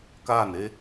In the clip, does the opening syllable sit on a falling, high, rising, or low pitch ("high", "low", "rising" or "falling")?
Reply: falling